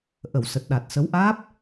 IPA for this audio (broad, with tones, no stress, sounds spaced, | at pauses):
ʔ ə˧˩ w s ə˨˩ t̚ ɗ a˨˩ t̚ s ə˨˦ w ʔ aː˦˥ p̚